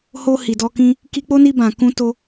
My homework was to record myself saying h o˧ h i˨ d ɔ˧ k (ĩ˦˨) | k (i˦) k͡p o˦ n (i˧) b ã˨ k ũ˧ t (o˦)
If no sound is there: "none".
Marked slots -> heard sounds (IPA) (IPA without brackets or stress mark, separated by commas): ĩ˧, i˧, i˧, o˧